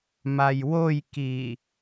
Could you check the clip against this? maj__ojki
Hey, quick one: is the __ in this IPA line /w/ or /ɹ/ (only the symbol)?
w